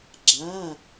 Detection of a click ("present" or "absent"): present